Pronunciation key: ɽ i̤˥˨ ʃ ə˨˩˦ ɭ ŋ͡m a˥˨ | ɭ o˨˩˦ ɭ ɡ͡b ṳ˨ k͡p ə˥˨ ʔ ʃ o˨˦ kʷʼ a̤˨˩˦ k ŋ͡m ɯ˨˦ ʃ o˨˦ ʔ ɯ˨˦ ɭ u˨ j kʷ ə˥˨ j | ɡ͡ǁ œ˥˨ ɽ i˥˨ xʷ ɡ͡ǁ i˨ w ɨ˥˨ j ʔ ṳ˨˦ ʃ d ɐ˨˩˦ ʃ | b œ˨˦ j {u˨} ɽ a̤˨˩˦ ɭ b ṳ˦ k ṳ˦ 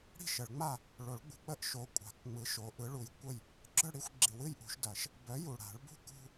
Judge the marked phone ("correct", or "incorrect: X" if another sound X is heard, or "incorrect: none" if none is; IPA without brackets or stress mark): correct